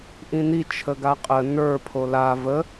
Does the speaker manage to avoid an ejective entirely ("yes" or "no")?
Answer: no